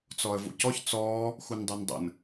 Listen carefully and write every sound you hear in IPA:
t͡s ɔ ə̯ v ṵ c ɔ ç t͡s ɔː | x u n dˤ y n dˤ ə̰ n

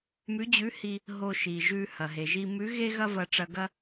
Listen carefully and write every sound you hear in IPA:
m ʉ˧˥ d͡ʑ ʉ˧˥ h i˧ | ɦ o˧ ʃ i˩ ʒ ʉ˧ h ɐ˩ ɦ e˩ ʒ i˧ m ʉ˧˥ ɣ e˥ ɣ ɐ˥ v ɐ˧ ʈ͡ʂ ɐ˧ ɡ ɐ˥

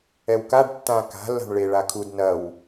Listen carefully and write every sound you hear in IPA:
ɛ w k a ɖ tː ã k a̤ lː a̤ ɳ ɭ e ɭ a kʰ u d n ɐ w

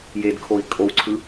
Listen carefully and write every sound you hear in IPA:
j e d kʰ o i̯ kʼ o w ǀʰ ɯ

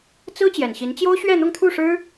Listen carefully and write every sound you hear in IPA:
t͡s ɹ̩˥ t͡ɕ j ɛ˨˩ n ɕ i˧˥ n t͡ɕ j o˥ ʊ̯ ɕ ɥ ɛ˥˧ n̪ ʊ˥˧ ŋ t̪ʰ u˥˩ ʂ ɻ̩˥

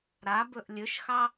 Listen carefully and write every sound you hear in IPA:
ɾ a b ɵ ʔ lʲ ɵ ʃ x ɑ

